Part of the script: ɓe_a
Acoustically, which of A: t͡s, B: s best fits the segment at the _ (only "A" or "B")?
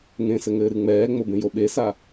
B